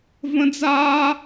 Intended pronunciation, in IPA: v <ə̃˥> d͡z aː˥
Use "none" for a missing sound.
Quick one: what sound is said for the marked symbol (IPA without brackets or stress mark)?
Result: ə̃˥